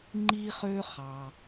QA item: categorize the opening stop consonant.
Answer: click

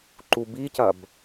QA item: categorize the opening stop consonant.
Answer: click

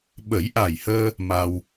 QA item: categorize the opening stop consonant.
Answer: implosive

